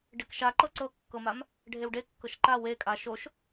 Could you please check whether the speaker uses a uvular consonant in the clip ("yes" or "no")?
no